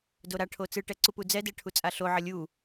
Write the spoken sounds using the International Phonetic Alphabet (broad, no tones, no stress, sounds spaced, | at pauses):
d o ɾ a ʈʰ o t͡s ɯ ʈ ɛ ǀ u p u d͡z ɛ d ɛ ʈʰ u t͡sʼ a ɬ o ʕ ʌ lʲ u